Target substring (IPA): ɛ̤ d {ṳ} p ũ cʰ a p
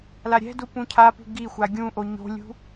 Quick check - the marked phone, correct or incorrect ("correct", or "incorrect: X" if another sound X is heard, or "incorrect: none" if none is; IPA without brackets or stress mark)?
incorrect: u